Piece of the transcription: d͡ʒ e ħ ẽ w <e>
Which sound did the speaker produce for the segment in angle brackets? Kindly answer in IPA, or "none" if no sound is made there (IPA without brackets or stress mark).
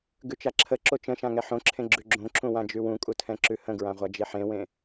ẽ